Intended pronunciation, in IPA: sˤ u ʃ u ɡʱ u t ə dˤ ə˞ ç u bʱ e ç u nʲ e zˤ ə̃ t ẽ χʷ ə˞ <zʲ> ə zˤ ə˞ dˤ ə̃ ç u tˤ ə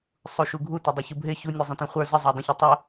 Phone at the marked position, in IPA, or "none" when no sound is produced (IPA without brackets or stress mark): z